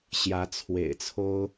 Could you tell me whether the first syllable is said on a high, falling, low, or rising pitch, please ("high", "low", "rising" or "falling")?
rising